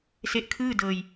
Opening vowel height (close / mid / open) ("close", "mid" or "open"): mid